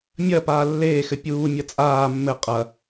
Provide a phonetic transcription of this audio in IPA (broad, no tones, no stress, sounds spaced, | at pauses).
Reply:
mʲ ɐ p aː lː eː x ɘ pʲ uː mʲ ɐ t͡sʼ aː mː ɘ qʼ ɐ